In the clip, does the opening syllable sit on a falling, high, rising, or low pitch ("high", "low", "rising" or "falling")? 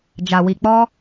low